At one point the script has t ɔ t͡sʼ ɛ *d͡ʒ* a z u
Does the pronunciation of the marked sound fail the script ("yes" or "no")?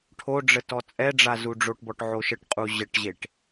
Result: yes